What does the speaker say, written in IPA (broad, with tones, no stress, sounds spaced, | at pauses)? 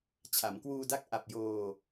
t͡ɕʰ a˩˦ m k w uː˧ d a˦˥ k̚ ʔ a˨˩ p̚ j oː˧